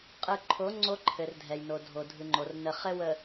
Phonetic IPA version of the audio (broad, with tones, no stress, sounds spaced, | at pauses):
qʼ ɯ˨ ǃʰ o˨˦ ŋ͡ǀ o˦ ǃʰ ɘ˨ r dʱ ɛ˨ j n o˨ dʱ o˨ dʱ ɯ˨ ŋ͡ǃ o˨ r n ə˨ χ ɘ˦ w ə˨